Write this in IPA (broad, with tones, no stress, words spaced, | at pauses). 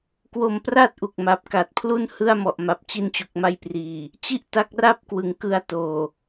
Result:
kwo˧mpra˥˩t̚ʔu˨˩k̚ ma˨˩p̚ka˨˩t̚pʰlu˥˩n hɯ˥˩a̯mɔ˨˩ʔma˨˩p̚ t͡ɕi˧nt͡ɕu˨˩k̚ma˦˥jpriː˨˩ | t͡ɕi˥˩ʔta˦˥k̚ra˥˩p̚kwɯ˨˩ŋ kɯ˧a̯toː˨˩